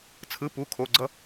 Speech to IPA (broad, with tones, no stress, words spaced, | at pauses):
t͡sʰɯ˧˥˧pu˧˥˧kʰo˧˥˧ɡ͡ǀʌ˥